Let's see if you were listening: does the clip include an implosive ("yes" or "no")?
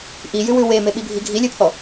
yes